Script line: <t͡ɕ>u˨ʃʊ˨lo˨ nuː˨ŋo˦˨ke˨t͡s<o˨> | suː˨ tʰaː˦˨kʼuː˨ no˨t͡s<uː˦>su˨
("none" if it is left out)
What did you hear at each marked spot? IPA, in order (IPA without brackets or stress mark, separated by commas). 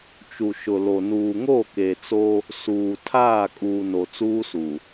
t͡ʃ, o˦, uː˦